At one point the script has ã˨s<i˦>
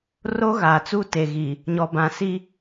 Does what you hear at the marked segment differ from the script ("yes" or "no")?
no